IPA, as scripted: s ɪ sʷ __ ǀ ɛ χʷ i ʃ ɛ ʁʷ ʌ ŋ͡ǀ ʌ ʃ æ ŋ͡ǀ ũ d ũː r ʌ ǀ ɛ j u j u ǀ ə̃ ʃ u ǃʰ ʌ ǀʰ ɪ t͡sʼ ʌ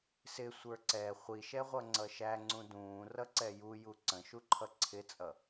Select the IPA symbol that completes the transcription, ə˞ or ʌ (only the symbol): ə˞